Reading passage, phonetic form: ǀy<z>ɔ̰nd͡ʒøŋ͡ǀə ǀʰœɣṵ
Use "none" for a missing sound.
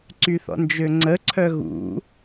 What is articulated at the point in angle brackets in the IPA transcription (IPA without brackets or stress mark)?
θ